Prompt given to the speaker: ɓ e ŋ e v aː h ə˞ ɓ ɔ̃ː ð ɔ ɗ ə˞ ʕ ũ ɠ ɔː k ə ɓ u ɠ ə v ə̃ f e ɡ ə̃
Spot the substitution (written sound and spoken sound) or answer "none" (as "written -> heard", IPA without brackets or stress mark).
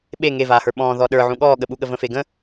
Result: k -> ɠ